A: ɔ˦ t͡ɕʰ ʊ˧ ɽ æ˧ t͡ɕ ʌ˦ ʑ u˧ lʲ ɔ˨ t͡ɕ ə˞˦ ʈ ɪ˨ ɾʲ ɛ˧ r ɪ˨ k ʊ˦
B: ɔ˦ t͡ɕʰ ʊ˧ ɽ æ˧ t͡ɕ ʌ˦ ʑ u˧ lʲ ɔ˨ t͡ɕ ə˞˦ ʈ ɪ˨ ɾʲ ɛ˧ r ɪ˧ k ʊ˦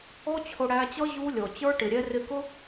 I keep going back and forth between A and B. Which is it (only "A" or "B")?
B